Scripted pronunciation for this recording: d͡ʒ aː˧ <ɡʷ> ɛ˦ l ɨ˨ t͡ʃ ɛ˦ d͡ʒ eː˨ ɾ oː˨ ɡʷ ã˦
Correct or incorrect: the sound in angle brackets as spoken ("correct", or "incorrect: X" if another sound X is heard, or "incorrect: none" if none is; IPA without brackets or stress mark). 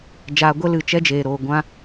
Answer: correct